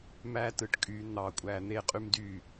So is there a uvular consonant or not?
yes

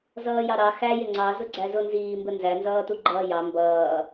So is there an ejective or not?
no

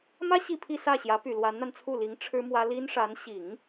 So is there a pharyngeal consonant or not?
no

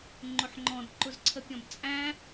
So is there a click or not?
yes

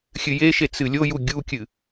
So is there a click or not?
no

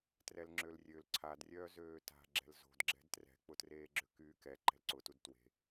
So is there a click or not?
yes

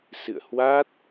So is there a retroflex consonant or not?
no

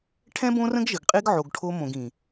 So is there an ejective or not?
yes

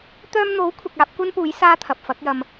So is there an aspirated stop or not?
yes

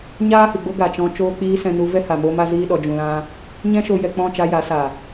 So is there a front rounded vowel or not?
no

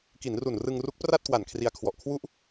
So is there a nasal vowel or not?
no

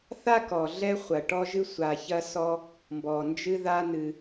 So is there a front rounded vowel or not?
no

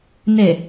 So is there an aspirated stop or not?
no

